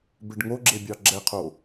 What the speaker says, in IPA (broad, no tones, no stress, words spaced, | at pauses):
beɖŋoɡ͡ǁebʲɑ ɡ͡ǁɛqʰo